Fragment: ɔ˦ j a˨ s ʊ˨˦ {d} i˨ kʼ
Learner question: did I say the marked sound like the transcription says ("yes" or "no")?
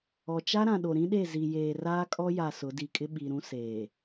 yes